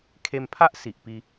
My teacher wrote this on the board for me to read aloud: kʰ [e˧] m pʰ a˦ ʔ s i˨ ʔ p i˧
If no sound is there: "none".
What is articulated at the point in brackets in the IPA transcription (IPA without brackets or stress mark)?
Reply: e˧